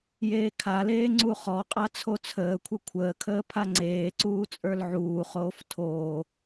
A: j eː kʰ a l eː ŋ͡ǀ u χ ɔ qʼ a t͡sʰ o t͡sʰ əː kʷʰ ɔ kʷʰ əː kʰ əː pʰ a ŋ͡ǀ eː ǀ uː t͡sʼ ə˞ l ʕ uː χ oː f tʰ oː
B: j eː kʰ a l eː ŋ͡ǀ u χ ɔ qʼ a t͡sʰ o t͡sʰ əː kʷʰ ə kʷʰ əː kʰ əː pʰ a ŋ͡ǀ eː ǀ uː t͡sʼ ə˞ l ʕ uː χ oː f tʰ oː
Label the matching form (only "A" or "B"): B